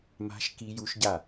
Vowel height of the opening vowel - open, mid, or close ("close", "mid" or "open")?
open